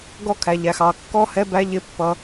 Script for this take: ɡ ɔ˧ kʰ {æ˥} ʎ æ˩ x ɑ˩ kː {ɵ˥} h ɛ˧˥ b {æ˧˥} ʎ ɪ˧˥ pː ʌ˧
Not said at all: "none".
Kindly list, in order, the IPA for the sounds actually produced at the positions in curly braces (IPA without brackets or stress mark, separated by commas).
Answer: æ˩, ɔ˥, æ˧˥